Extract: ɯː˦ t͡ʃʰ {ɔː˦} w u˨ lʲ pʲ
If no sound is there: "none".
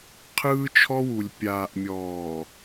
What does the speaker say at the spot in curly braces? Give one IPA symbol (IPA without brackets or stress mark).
ɔ˦